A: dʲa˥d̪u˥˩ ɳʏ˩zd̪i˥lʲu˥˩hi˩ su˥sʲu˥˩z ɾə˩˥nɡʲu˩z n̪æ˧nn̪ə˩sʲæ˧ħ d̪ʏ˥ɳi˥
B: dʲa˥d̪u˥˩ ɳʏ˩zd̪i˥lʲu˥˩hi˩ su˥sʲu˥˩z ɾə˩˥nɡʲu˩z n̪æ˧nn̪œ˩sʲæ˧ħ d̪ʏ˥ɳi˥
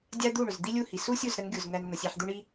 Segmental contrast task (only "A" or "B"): A